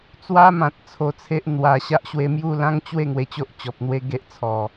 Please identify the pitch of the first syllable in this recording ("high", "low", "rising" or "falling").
high